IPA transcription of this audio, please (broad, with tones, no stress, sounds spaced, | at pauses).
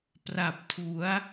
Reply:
p r a˨˩ p̚ tʰ u˩˦ a̯